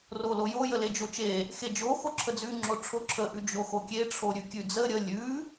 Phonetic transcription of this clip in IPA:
r o l o j o j ə l e d͡ʒ o t͡ʃ e | x e d͡ʒ o x o ǁʰ ə d͡z ʉ ŋ͡ǁ o ʈ͡ʂʰ o ǁʰ ə ʔ ʉ d͡ʒ o x o kʲ e ʈ͡ʂʰ o ɾʲ ʉ kʲ ʉ d͡z ə ɾʲ ə lʲ ʉ

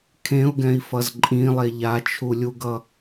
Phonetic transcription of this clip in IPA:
kʰ ẽ u̯ ɡ ɛ̃ i̯ f ʌ z ǃʼ ĩ lˠ e ʎ a t͡ʃʰ u lʲ u ɡ ʌ

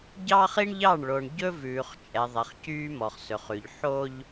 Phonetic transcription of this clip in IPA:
ɟ ɑː˦ χ i˦ ɳ ʎ ɑ˦˨ ɳ ɭ o˨ ɳ ɟ ɵ˦ v ʉː˨ χ t͡ʃʼ ɛ˨ ðˤ ɛ˨ χ c yː˦ m ɔ˨ χ s ɵ˨ χ ʉ˨ ʎ ħ o˦ ʎ

